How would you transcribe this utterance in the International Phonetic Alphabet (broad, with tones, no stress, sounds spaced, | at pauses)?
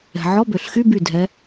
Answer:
ɛ̤˩ ʕ ɔ˧˥˧ b ø˩ ɬ x y˧˥˧ b y˧˩ dʱ ɛ˨˦